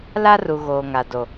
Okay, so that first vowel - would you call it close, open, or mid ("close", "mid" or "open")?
open